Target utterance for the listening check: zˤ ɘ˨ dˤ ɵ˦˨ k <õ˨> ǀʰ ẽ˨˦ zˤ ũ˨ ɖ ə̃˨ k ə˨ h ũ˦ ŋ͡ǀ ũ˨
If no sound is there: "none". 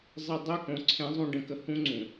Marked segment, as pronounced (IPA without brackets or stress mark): õ˨